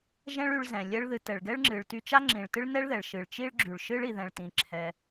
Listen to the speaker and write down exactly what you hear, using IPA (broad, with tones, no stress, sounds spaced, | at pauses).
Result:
ʒ ɛ̃˥ ɭ y˧ ɭ z ɛ̃˩ lʲ ɛ˥ ɭ ð ɨ˧ t ɛ˩ ɭ ɡ ɛ˥ ɭ ŋ͡ǁ ɨ˩ ɭ t y˧ t͡ʃ a˥ ŋ͡ǁ ĩ˩ ɭ t ɨ˥ ɭ n ɛ˥ ɭ ð ɛ˩ ɭ ʃ ɨ˩ ɭ t͡ʃ i˥ ɭ ɡ͡ǁ y˩ ɭ ʃ ɨ˥ ɭ i˩ ð ɛ̃˩ ɭ t ĩ˩ ǁʰ ɛ˩